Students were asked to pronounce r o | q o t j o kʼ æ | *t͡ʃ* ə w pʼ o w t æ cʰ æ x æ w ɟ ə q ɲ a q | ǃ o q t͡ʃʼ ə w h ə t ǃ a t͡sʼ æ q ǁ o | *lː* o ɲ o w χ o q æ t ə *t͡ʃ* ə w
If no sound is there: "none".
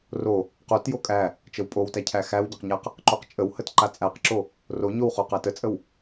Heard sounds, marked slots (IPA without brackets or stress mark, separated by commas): t͡ʃ, r, t͡sʼ